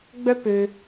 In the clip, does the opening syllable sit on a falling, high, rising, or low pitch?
high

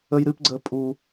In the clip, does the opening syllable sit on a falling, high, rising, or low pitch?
high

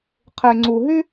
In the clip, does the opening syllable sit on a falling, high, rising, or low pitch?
low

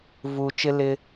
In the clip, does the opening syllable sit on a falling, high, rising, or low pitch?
low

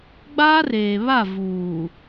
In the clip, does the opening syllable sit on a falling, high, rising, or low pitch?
high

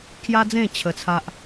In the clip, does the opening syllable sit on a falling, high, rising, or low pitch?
high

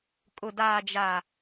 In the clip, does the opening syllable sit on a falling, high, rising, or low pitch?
low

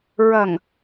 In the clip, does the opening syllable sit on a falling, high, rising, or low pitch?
low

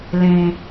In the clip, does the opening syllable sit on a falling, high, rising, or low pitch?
low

